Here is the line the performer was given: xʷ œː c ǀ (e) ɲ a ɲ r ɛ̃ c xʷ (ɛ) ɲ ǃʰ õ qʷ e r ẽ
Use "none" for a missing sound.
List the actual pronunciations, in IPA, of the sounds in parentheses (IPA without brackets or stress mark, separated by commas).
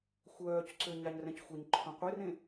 ø, ɛ